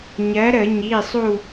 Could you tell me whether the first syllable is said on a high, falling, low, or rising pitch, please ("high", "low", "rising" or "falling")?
rising